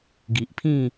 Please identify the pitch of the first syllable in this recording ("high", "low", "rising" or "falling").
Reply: low